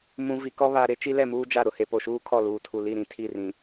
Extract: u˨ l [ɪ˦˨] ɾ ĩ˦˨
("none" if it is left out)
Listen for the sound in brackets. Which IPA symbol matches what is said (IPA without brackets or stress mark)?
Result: i˦˨